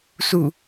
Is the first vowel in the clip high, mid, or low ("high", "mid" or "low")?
high